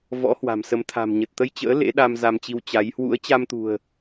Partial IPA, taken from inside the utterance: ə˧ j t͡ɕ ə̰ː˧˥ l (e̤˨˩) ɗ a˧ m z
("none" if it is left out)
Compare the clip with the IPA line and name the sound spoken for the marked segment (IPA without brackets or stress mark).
ḛ˧˥